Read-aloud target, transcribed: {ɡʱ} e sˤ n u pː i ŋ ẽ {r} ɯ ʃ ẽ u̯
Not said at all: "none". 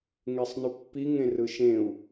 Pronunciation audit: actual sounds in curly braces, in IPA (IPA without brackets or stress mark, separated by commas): ŋ, r